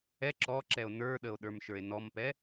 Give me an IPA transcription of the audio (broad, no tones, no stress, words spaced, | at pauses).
ɛ ǁɔ ǁɛo̯nə˞ɗəo̯ ɗə˞mʃə˞e̯nɔmpɛ